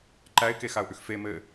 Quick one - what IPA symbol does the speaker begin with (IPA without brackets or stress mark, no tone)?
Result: ǃ